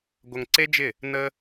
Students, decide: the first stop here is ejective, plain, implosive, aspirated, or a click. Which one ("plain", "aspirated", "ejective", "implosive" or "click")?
plain